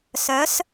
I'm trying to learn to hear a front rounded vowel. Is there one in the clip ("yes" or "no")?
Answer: yes